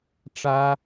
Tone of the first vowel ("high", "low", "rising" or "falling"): high